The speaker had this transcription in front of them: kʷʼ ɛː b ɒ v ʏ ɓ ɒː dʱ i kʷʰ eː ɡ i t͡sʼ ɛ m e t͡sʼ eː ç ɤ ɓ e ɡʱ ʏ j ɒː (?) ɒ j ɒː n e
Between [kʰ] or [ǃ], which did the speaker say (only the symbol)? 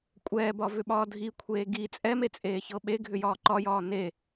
ǃ